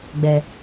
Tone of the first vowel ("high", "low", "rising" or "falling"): low